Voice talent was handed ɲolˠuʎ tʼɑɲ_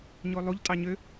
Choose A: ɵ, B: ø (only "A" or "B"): B